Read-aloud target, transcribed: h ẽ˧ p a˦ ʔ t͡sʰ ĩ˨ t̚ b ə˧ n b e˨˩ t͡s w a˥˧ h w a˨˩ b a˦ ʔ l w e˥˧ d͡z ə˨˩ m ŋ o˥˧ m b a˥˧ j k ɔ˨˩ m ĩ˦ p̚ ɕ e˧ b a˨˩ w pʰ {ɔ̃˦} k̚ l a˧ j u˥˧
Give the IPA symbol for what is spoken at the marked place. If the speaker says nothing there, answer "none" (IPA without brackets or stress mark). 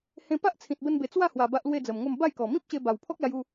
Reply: ɔ˦